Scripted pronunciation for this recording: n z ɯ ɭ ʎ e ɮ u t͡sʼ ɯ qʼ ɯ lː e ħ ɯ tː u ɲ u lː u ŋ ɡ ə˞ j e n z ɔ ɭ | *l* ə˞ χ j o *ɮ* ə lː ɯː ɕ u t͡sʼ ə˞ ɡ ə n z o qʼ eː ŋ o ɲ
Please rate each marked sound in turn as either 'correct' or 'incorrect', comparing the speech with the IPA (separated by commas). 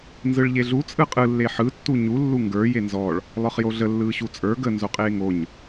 incorrect, correct